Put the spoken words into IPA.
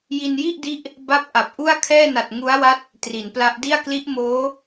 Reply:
j i˧ n j i˥˩ ʔ d i˦˥ ʔ | b a˦˥ p̚ ʔ a˨˩ p̚ ʔ u˥˩ a̯ kʰ ɛː˥˩ n a˨˩ t̚ ŋ u˦˥ a̯ w a˦˥ t̚ | t r i˩˦ n p l a˦˥ ʔ d i˥˩ a̯ k l i˦˥ ʔ m oː˦˥

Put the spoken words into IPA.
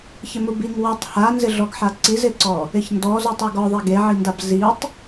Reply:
ç ɪ m u b i ŋ w i tˤ h a n z ɪ ɮ ɔ ɡ ħ a ǀ i z ɪ ǀ ɔ | ɪ ç n d ɔ z u tˤ e ɡ ɔ ðˤ e ɡ e ʕ i n d a b z i tˤ

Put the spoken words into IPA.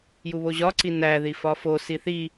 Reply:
j u β o ʑ ɒ ǀ i n æ ð i f ɒ f o s i θ i

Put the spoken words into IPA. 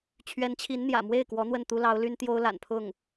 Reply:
t͡ɕʰ ɥ ɛ˧˥ n t͡ɕʰ i˧˥ n n̪ j ä̰˨˩ m w e˥˩ ɪ̯ k w ɔ˧˥ n̪ w ə˥˩ n t̪ u˥ l ɑ˧˥ ʊ̯ l y˥ n t̪ j o˥ ʊ̯ l a̰˨˩ n pʰ ʊ˥˩ ŋ

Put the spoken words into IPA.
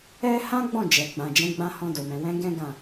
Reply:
ɛ˦ h ã˦ ɡ͡b ɔ̃˦˨ d͡ʒ ɛ˨ ɡ͡b ã˨ d͡ʒ ɛ̃˨˦ ɡ͡b ã˧ h ɔ̃˧ d o˨ m ɛ̃˨ w ɛ̃˨˦ ɡ ɛ̃˦ ɡ ã˦˨

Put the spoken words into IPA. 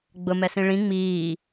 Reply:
ɡ͡b ʊ m ɛ s ĩ ɭ ĩ ŋ͡m iː

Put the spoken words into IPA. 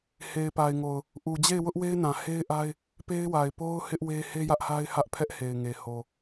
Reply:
h e˨ ɪ̯ p a˨ ɪ̯ ŋ o˨ ʊ̯ | ʔ u˨ d͡ʑ e˦˨ ɪ̯ w ʊ˦ ʔ w e˦ ɪ̯ n ã˨ h e˦ ɪ̯ ʔ a˦ ɪ̯ | p e˦ ɪ̯ w a˨ ɪ̯ p o˦ ʊ̯ h ɪ˦ ʔ w e˦ h e˦ j ä˦ ʔ h a˦ ɪ̯ h ä˦ ʔ pʰ ɛ˦ ʔ h e˨ ɪ̯ ŋ e˨ h o˨

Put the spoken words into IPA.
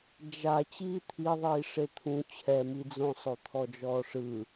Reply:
d͡ʒ a t͡ɕ iː t̪ʰ i ðˤ iː ʂ e t̪ʰ ũ t͡ɕʰ ɛ m i d͡z õ sˤ o t̪ʰ ɔ d͡ʒ ɔː ʂ ɯ

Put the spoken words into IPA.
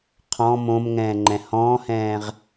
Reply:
qʰ ɔ̃ m õ m ŋ ɛ̃ː ŋ͡ǃ ɛ̃ h ɔ̃ː h ɛ̃ː ʁ

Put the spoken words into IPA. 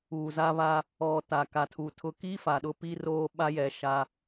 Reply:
uː˨ z a˦ β a˦ | ɔ˨ t a˨ k a˨ tʰ u˨ tʰ ʊ˦ k i˦ f a˨ ɗ ʊ˦ p i˦ r oː˦ ɓ a˦ j ɛ˨˦ ʃ a˦

